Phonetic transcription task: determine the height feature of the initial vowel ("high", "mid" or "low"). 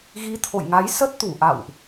high